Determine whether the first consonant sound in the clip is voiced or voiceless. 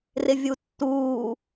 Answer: voiced